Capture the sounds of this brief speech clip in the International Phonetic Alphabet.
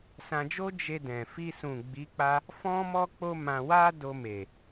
sã˧d͡ʒo˦ d͡ʒe˧dɛ̃˨fi˧ sũ˨ ɡ͡bi˨˦k͡pa˧ | fɔ̃˦ mɔ˦k͡po˦mã˧wa˦ do˧me˨

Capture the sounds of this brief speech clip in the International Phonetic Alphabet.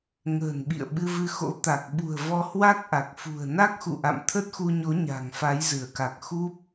ŋə̤ː˨˩nɓḭ˧˨ə̯ ɓɨ˧vɨ˧xo̰˧˥ t̪a˨˩k̚ ɓṳ˨˩ə̯ vɔ˧hwa˦˥k̚ʔa˨˩k̚ fṳ˨˩ə̯na˦˥k̚xṵ˧˨ʔa̰˧˨m t̪ʰə˦˥t̚xu˧ɲo˨˦ ɲa̤˨˩ŋfa˨˦jzɨ˧˩ə̯ka˨˩k̚ xu˦˥p̚

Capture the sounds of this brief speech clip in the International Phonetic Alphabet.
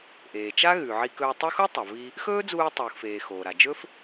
ʔeː˩t͡ʃa˥ ɣʉ˩ ʕi˧kɵː˧tˤɵ˥ xo˥tˤa˩vi˧ | xɵː˥d͡zuː˧ tˤuː˩xfeː˩ xoː˩ɾa˩ d͡ʒɵ˥f

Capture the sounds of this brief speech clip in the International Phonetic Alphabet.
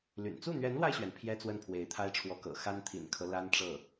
ly̰˨˩n t͡su˥˩n̪ɥɛ˧˥nlwa˧ɪ̯ɕɥɛ˩n pʰjɛ˥ t͡swə˥˩npʰwe˧˥ɪ̯t̪ʰa˥ɪ̯ʈ͡ʂʰwɔ˧˥ kɤ̰˨˩xa˥n t̪ʰḭ˨˩nkʰɤ˦ la˥nʈ͡ʂɤ˥˩

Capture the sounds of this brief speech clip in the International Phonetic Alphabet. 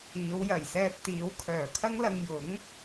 iː˨˧w jɐ˨˩jsɛː˧p̚ t̪iː˨˧wkʰœː˨˩kʰɐ˥ŋlɐ˧ŋ jʊ˨˥ŋ

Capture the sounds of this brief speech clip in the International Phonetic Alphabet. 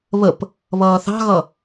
βəp | βʌːθɑ̤ɣʌ

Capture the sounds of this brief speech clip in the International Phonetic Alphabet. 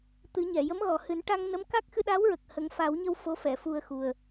t̪ɨ˨˩˦ɲɛ˨˩˨ jə˧˥mɣɔ˨˩hɨ˨˩˦n ʈa˧ŋnə˧˥m ka˦˥k̚xɨ˧ɗa˧˥wɹə˨˩k̚ hə˨˩˦ŋfa˨˩˦wɲə˧w fo˧˥fɛ˨˩˨fu˧ə̯xu˨˩ə̯

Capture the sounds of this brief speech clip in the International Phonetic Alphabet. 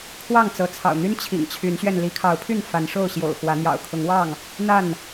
kʰwɑ˥˨ŋt͡sɤ˨˦ t͡sʰɑ̰˨˩ʊ̯n̪y˦n t͡ɕʰḭ˨˩ŋt͡ɕʰy˨˦nɕɥɛ˧n li˨˦kʰɑ˨˦ʊ̯pʰy˥˨n fa˨˦nʂo˥˨ʊ̯ ɕjo̰˨˩ʊ̯ xwä˨˦n̪jɑ̰˨˩ʊ̯ kʰʊ˨˦ŋwɑ˥˨ŋ | n̪a˥˨n

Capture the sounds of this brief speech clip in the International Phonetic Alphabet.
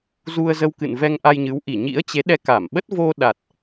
zu˧ə̯zə˧wkɨ̰˧˨n vɛ˧ŋʔa˧jɲɨ˨˦w ʔi˧˩ɲḭ˧˥ə̯t͡ɕe˨˦ ɗɛ˧ka˧˩mɓə˦˥t̚ vo˧ɗa˨˩t̚

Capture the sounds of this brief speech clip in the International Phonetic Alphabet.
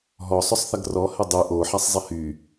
ɦɔsˤʏsˤθɐɡ rɔhɛ dˤy ʔoħasˤzˤi hy

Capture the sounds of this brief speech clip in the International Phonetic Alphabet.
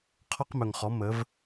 qʰɔ˦qmɵ˨ŋχɔ˨˦ mə˨˦v

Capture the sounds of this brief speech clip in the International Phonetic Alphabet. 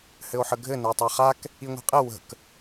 hɘo̯ħəɡʱɘ nəo̯tˤaχak | iŋʷi̤qʼɘ wə̤k

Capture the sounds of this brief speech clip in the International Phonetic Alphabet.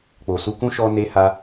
k͡po˨su˧kũ˦ ʃɔ˧ne˧ha˧

